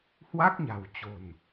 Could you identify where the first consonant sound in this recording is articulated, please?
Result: glottal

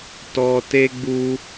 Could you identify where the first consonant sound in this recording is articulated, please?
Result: alveolar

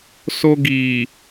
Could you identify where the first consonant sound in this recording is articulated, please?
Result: alveolar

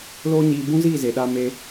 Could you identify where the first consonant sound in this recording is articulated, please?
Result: alveolar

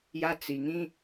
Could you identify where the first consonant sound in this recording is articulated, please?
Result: palatal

